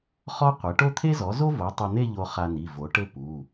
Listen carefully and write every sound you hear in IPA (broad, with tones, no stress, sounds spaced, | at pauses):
χ ɔ˥ qʷ ɘ˩˥ ʈ o˥˧ t̪ʰ e˥ z ɔ˩˥ z o˥ v o˩˥ tˤ ɐ˧ n̪ e˥˧ ʎ o˧ χ a˧ n i˩˧˩ v o˩˥ ʈ ɘ˥˧ p u˩˧˩